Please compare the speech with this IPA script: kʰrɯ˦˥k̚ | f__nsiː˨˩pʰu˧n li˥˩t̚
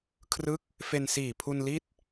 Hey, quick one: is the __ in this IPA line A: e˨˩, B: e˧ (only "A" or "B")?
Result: B